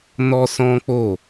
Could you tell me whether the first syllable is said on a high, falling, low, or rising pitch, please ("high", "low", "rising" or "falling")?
high